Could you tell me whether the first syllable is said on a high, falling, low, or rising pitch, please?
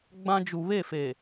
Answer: high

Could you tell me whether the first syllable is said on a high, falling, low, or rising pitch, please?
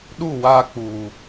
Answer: falling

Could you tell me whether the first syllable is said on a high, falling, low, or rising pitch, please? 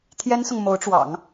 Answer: high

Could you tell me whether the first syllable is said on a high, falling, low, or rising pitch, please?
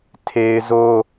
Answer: high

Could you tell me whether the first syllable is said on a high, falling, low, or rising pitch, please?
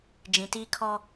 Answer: low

